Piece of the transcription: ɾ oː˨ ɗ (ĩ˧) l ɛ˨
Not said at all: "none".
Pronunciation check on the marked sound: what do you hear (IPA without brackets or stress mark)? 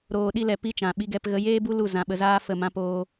i˧